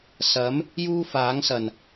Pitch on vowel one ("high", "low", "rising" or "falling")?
rising